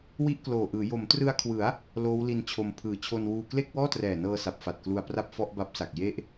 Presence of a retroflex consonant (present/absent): absent